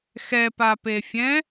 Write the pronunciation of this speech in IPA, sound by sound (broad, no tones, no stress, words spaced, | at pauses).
xɛpapefʲɛ̃